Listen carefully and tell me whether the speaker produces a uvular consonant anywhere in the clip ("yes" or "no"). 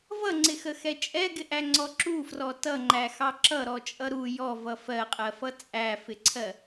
yes